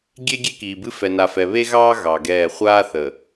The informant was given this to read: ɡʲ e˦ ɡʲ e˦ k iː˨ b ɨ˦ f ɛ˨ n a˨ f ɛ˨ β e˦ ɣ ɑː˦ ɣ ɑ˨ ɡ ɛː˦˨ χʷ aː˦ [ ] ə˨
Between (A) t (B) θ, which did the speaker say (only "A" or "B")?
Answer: B